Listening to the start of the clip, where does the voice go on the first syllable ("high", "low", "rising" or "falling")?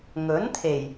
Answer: rising